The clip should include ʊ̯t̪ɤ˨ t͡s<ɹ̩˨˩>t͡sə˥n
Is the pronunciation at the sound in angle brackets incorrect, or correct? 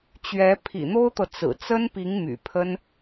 correct